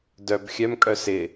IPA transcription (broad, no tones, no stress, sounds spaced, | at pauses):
d œ b xʲ œ m kʼ œ s ɪ